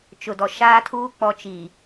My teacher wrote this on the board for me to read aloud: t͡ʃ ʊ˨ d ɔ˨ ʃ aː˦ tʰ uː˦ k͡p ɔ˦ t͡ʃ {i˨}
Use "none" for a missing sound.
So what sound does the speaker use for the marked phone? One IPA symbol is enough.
i˨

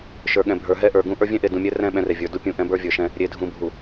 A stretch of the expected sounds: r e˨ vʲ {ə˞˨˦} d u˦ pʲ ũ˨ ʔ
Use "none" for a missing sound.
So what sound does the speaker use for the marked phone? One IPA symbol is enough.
ə˞˨˦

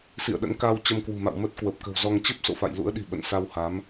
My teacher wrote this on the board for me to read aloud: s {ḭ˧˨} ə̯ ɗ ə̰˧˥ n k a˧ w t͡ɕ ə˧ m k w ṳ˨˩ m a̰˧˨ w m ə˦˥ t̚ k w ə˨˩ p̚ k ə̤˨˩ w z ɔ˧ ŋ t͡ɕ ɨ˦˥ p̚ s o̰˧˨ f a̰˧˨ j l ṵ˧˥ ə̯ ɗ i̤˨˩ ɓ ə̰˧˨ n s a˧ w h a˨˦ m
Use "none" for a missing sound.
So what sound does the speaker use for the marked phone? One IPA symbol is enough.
ḭ˧˨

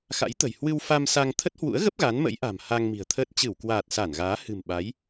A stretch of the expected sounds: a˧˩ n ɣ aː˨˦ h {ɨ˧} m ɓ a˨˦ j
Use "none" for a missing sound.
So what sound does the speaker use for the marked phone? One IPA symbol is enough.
ɨ̤˨˩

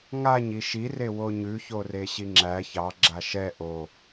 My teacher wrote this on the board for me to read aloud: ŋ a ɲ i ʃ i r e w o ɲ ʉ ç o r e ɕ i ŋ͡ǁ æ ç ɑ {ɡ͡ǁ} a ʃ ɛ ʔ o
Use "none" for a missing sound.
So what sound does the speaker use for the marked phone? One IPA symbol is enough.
ɡ͡ǁ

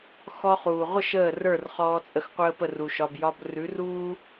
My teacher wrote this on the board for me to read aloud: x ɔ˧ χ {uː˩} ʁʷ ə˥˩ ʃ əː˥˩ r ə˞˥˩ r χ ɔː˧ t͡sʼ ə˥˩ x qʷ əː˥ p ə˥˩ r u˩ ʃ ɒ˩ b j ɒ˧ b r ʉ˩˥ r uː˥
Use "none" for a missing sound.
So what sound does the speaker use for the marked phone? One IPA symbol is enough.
uː˩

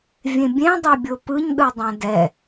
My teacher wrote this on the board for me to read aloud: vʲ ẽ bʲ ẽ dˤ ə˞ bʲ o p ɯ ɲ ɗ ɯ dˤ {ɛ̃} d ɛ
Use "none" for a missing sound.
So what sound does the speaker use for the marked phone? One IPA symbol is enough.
ɛ̃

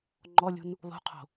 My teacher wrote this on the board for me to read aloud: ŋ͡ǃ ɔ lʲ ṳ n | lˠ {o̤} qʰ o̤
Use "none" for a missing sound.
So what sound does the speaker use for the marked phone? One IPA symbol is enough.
ṳ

